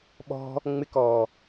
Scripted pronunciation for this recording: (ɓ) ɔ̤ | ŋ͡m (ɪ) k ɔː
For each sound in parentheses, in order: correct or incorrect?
correct, correct

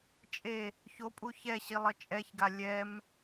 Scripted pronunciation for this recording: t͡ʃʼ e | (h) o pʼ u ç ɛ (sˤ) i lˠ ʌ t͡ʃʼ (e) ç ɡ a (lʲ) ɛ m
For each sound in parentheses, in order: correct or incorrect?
incorrect, incorrect, incorrect, correct

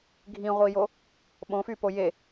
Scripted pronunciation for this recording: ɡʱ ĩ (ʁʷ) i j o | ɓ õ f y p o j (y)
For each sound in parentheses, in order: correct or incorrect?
correct, incorrect

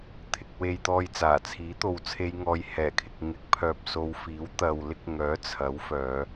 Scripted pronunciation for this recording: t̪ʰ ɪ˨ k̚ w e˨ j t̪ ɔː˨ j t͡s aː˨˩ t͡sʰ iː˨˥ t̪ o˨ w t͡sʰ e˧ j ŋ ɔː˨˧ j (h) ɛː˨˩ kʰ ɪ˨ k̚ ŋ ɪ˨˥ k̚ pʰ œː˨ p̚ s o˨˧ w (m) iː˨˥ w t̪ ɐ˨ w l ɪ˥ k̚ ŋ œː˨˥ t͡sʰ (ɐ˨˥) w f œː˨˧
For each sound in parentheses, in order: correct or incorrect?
correct, incorrect, correct

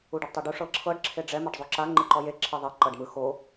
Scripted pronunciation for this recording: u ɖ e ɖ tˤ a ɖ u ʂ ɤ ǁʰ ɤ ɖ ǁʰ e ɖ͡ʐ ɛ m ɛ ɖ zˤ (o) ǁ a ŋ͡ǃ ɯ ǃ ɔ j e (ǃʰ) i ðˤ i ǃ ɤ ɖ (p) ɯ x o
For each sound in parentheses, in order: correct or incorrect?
correct, incorrect, incorrect

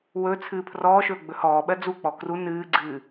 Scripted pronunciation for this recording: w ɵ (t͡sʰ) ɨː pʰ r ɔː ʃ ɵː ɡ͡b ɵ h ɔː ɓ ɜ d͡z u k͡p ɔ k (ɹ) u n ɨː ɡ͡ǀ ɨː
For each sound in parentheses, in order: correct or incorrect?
correct, incorrect

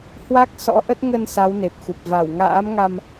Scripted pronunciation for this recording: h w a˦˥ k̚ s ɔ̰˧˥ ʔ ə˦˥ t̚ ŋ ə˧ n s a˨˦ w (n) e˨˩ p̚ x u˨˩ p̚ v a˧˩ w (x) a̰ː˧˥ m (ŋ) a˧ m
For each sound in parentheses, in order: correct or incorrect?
correct, incorrect, correct

